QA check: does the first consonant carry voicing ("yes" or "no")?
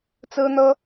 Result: no